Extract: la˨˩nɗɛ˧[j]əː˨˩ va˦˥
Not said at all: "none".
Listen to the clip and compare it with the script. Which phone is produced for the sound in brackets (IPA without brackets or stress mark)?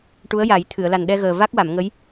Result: ɣ